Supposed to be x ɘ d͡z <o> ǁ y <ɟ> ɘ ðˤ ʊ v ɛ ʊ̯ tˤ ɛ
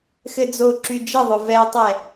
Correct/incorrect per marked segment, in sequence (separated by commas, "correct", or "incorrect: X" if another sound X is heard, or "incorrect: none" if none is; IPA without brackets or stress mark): correct, incorrect: d͡ʒ